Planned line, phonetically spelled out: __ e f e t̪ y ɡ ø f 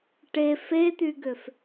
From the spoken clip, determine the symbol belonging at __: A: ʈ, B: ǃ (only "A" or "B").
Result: A